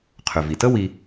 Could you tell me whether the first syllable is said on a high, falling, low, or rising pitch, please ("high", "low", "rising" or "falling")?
low